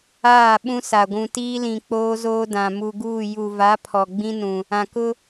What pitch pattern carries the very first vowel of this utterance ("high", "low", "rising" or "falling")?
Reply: falling